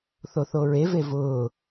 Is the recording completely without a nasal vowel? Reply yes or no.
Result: yes